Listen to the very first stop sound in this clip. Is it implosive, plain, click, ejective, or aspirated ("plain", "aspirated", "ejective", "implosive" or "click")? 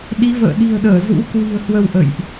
implosive